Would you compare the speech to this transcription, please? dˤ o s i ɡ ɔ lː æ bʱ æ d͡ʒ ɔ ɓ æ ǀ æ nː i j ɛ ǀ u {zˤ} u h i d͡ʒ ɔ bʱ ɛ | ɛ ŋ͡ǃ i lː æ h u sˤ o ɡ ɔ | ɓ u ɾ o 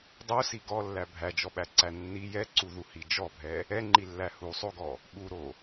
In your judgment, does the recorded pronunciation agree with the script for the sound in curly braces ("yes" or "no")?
no